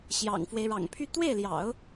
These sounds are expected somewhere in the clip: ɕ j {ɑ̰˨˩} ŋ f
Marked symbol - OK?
yes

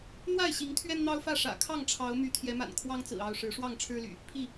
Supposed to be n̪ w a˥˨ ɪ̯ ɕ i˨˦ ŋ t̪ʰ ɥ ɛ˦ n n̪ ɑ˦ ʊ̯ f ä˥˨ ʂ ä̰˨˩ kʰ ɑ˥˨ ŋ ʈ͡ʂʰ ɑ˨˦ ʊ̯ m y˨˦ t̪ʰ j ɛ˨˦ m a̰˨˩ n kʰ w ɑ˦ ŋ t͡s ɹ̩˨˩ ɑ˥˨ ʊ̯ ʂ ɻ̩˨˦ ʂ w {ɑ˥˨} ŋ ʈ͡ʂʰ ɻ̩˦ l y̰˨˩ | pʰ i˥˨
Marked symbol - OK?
yes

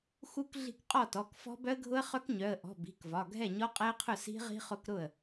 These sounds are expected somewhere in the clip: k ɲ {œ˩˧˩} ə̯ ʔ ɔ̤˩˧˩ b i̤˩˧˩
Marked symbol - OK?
yes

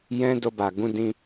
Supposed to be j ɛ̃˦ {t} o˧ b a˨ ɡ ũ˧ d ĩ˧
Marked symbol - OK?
no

